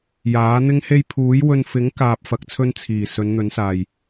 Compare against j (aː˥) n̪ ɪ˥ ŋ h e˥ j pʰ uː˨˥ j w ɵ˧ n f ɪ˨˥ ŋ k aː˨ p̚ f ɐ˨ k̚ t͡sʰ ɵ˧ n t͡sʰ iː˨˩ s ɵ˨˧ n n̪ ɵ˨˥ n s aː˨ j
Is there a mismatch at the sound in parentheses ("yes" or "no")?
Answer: yes